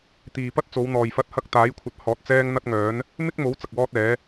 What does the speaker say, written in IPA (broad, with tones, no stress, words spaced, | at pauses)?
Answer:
t̪iː˨pɐ˥t̚t͡so˨˧wn̪ɔː˨j fɐ˧t̚hɐ˧k̚ t̪aː˨˥jkʷʰɐ˨t̚hɔː˨t̚ t͡sɛː˥ŋn̪ɐ˥t̚ŋœː˨˥n | mɪ˥k̚mo˨˥w t͡sɐ˨k̚wɔː˥t̚ɛː˨˥